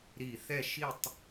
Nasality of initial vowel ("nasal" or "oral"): oral